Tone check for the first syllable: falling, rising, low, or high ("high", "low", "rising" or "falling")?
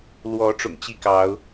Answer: rising